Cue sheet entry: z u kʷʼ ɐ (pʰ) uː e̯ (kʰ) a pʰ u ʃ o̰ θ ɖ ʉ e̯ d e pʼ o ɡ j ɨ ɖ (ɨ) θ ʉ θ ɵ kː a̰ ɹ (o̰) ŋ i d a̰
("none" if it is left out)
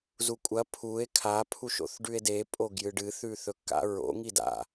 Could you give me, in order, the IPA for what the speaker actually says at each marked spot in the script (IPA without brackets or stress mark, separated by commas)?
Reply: pʰ, kʰ, ɨ, o̰